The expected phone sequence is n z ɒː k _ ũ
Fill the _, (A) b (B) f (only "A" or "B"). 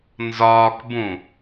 A